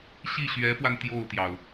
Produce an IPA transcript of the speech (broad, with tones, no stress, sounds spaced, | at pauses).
ɕ i˥˩ ɕ ɥ ɛ˧˥ f w a˧ n t̪ j o˥˩ ʊ̯ t̪ j ɑ˩ ʊ̯